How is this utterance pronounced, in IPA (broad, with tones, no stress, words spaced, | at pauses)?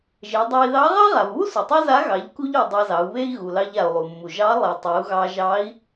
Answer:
ʒe˩˧dˤa˧i̯ ðɑ˧˥ ʁɑ˥ʁa˩vβu˥ su˩tˤa˥za˧˥ ɣɑ˩˧ʎku˧ʎu˩ dˤɑ˧zɑ˩˧u̯βe˥i̯ ɣu˩lɑ˧ʎ a˩u̯lˠu˩mːu˩ ʒɑ˧˥ lˠe˩ tˤe˩˧u̯ɣɑ˧ʒɑ˧˥i̯